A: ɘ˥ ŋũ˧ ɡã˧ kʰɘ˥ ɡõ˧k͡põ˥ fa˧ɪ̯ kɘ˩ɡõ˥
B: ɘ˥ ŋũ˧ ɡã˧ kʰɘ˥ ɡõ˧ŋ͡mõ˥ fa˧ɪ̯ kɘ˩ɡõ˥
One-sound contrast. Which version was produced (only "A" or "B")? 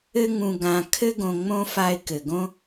B